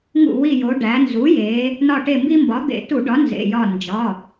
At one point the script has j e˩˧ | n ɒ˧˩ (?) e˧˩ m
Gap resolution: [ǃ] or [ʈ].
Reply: ʈ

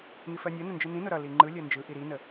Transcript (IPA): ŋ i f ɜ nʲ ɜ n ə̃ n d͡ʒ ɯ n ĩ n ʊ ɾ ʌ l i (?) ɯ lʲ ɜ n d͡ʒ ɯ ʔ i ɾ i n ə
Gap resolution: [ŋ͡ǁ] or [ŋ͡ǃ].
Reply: ŋ͡ǃ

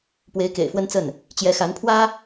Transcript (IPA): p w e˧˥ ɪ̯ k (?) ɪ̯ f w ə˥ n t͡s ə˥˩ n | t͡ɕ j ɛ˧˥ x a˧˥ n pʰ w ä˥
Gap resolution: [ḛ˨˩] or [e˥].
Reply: ḛ˨˩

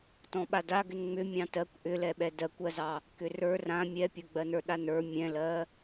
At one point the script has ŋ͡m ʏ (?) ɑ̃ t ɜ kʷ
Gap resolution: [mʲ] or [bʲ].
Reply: mʲ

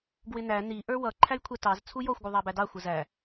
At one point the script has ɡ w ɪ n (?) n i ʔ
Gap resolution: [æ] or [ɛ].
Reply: æ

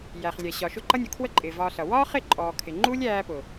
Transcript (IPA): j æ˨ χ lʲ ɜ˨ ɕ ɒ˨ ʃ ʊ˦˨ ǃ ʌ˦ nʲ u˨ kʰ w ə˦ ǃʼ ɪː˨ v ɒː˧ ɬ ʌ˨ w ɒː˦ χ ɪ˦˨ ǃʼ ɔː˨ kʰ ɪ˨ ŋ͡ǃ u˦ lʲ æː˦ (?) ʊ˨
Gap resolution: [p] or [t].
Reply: p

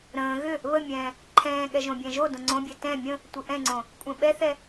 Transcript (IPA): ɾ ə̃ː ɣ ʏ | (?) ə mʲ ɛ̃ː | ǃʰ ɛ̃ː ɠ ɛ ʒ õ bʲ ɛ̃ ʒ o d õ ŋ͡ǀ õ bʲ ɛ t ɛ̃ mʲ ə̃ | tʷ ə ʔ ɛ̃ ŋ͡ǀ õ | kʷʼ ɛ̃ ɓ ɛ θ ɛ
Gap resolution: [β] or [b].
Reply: β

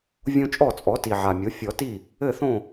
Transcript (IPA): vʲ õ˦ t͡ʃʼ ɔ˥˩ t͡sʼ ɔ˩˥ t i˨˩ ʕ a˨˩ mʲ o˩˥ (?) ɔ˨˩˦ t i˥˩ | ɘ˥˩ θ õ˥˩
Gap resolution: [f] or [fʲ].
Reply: fʲ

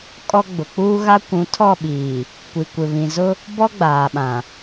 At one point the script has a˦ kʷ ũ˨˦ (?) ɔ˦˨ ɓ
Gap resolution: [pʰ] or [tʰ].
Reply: tʰ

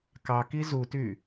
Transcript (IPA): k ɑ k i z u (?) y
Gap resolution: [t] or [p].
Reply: t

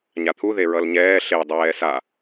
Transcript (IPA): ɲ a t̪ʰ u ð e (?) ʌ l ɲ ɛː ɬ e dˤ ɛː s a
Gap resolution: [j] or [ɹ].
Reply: ɹ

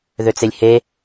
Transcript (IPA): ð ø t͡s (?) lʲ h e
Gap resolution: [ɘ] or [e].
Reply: e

